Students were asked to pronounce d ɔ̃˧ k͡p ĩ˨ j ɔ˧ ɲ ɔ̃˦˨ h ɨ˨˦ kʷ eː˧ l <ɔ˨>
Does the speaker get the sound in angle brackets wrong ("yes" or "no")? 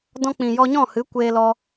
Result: yes